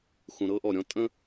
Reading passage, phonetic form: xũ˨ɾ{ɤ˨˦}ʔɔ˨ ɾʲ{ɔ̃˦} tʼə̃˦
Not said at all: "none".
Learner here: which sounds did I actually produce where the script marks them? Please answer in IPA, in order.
ɤ˦, ɔ̃˦

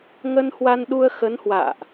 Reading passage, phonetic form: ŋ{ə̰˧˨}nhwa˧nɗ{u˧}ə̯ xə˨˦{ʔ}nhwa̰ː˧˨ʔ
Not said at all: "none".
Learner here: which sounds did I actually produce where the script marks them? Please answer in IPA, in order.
ə˧, u˧, none

